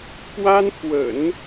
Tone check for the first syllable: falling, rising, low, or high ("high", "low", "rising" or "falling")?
high